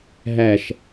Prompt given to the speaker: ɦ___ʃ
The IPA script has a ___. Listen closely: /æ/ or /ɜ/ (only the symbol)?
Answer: æ